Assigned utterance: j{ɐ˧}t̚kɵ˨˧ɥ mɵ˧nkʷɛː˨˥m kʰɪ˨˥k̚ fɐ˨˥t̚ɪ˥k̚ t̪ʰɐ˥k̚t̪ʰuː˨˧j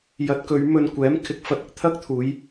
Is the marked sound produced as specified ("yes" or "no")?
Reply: no